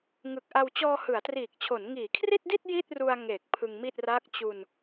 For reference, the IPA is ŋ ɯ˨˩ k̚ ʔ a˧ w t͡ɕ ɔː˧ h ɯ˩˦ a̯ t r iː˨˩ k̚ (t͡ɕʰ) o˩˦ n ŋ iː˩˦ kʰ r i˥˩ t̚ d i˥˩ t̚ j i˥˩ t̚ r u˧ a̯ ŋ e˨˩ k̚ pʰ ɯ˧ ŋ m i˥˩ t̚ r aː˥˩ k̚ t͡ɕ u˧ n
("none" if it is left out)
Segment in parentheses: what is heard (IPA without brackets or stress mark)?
t͡ɕʰ